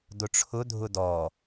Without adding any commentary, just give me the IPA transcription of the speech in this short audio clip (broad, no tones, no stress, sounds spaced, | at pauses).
d ʊ ʈ͡ʂʰ ʊ dʱ ʊ d ɔ